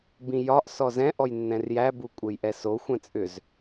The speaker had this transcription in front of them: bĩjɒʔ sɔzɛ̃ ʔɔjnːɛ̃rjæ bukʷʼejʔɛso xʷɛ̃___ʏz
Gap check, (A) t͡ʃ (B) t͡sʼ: B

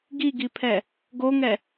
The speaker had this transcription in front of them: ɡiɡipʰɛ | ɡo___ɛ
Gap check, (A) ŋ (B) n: A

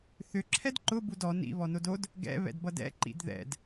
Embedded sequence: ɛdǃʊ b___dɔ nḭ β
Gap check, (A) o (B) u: B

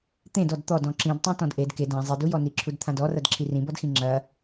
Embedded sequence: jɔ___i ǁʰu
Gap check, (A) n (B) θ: A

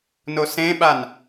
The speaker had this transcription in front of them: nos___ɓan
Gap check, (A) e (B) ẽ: B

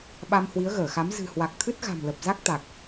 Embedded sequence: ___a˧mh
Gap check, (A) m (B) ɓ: B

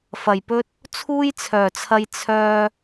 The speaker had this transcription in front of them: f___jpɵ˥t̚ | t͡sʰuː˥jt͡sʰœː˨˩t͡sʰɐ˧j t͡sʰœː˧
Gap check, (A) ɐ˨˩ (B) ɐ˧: A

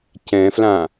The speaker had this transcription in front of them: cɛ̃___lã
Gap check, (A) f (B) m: A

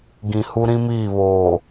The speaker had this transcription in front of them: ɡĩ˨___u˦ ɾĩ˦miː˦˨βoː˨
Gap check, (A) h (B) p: A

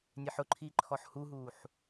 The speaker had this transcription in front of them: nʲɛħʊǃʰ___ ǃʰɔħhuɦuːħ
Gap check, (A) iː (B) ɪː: A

